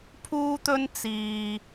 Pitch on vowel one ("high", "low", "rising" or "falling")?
high